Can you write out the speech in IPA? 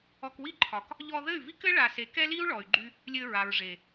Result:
ɔ˧ k w i˦ ǃʰ ɒ˨ k | ʎ ɔ˧ ð ɘ˦˨ y̯ v i˦ k ɘ˦ ɭ a˧ s e˨˦ k ɛ˦ l i˦ u̯ ɭ ɔ˨ y̯ ɡ͡ǃ y˦ | lʲ ɘ˧ ɹ a˨ ɹ ʐ e˨

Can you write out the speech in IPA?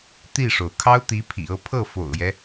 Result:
t̪ i˥˩ ʂ o˩ ʊ̯ kʰ ɑ˥ ʊ̯ t̪ i˧˥ pʰ ḭ˨˩ ɤ˥˧ pʰ ɤ˥˩ f o̰˨˩ ʊ̯ j ɛ˦

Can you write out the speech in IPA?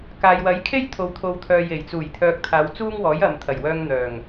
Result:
k aː˨ j w ɐ˨˥ j kʰ e˥ j t̪ʰ o˨ w t̪ʰ o˨˧ w t̪ʰ œː˨ j e˨˩ j t͡s uː˨˩ j t̪ʰ œː˨ k̚ t̪ʰ aː˨˧ w t͡s uː˥ ŋ w ɔː˨˥ j ɐ˨ m t̪ʰ ɐ˨˩ j w œː˧ ŋ n̪ œː˨˩ ŋ

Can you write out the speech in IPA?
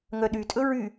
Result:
ŋ œ ɗ y tʼ ɵ ɹ y

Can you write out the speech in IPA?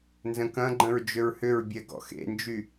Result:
n z ə̃ k ɐ̃ ɡ͡ǃ ə̃ ɹ d͡ʒ ʏ ɹ h ʏ ɹ bʲ ɛ ɡ ɔ̰ x ḛ n d͡ʒ y

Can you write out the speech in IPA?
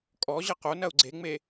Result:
kʼ ɔ ʑ ɐ q o n ɐ u̯ ɡ͡ǀ e ŋ͡m e

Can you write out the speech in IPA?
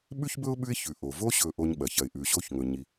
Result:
ɓ ʉ˥ ç b ɵ˥ ʊ̯ ɓ ʉ˦ ɪ̯ ç ʉ˩ ʔ o˩ v o˦ ɕ ɵ˨ ʔ o˦ ɲ ɓ ɐ˩ ç ɐ˨ ɪ̯ ʔ ʉ˨ ɕ o˥ ç ŋ ɵ˨ ɲ i˩

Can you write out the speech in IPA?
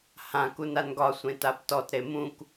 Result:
h ã k u n a n ɡ ɒ sʷ ẽ t a b t ɔ t ɾ e m ũ k

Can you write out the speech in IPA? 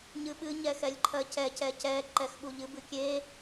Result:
ɲ ɨ ɓ ɨ ɲ ɛ x ɛ lʲ ǃʰ ɜ c ɛ c ɛ c ɛ ǃ ɛ x ɓ u ʎ ɨ b ɨ kʲ e

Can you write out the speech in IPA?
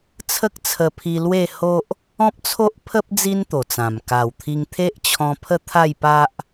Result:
t͡sʰ ə˦ k̚ t͡sʰ ə˧ pʰ i˧ l w e˥˧ h o˦ ʔ | ɔ̃˦ p̚ t͡sʰ o˦ ʔ pʰ ə˦ p̚ d͡z i˦ n t̪ o˨˩ t͡s ã˨˩ m k a˨˩ w t̪ʰ i˧ ŋ t̪ʰ e˦ ʔ t͡ɕʰ ɔ̃˧ pʰ ə˥˧ t̪ʰ a˥˧ j p a˦ ʔ

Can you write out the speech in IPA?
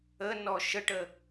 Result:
ə n ɔ ʃ ə ʈ ə

